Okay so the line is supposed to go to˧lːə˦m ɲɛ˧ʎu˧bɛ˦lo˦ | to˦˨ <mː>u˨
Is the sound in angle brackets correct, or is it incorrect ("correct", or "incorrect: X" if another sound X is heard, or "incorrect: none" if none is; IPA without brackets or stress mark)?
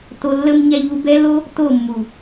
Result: correct